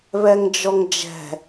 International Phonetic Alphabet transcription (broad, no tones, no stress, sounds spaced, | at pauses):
β ɛ ŋ d͡ʒ ɔ ŋ d͡ʒ ɛ̤